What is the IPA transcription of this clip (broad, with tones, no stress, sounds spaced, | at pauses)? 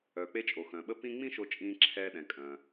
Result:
œː˩ k͡p e˧ t͡ʃʼ o˩ x œ̃ː˩ ɓ ə˥ p ĩ˥ ŋ͡m ĩ˥ ʃ o˧ t͡ʃʼ ĩː˧ ǁʰ ɛː˧ ɗ ɛ̃˩ kʼ œ̃ː˩